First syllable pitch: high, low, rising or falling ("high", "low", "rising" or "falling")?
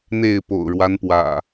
falling